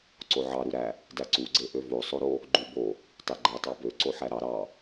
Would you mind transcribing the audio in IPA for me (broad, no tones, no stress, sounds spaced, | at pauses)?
ǀ o ʕ ɑ ɾ u ɾ æ | d æ ǀ u ɡ͡ǀ e ʔ ø v o sˤ o ɾ o | ɡ͡ǃ u b o | tˤ e ɡ͡ǃ æ tˤ ɑ b ø ǀ o ħ æ ɾ ɑ ɾ ɑ